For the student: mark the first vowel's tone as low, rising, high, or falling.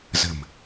low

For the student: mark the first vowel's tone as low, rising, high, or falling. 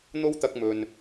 high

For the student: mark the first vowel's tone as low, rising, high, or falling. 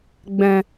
low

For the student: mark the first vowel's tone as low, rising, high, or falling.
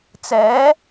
rising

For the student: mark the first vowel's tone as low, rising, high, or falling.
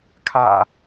low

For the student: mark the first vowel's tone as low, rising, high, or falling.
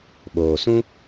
low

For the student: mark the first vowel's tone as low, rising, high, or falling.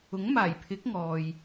rising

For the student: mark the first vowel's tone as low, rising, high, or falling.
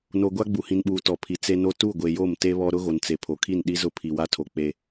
low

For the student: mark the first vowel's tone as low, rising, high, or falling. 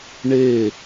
falling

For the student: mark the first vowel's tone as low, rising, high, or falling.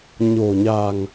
low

